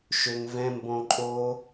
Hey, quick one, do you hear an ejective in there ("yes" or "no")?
yes